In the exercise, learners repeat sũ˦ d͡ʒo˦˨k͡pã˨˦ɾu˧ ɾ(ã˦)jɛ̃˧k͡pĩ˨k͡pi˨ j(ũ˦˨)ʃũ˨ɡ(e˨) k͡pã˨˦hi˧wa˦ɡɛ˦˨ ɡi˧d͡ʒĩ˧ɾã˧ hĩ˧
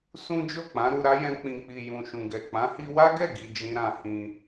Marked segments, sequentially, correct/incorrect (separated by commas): incorrect, incorrect, incorrect